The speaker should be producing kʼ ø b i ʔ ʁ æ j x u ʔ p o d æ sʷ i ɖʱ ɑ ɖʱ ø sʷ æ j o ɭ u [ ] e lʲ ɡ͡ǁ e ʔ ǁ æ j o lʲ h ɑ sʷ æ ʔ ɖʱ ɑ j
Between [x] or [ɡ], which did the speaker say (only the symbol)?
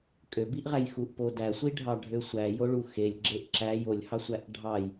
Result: x